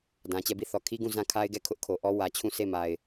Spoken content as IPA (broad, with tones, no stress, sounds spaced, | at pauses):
d ã˨ t͡ɕ ɛ˦˨ b i˦˨ θ ɔ˨ kʰ i˦ ɡ ũ˦˨ z ã˦˨ kʰ a˦ ɪ̯ ɡ ɛ˦˨ kʰ ʊ˦ ʔ kʰ o˨ ʔ ɔ˦ w ä˨ t͡ɕʰ ũ˦˨ s e˦˨ m a˨ ɪ̯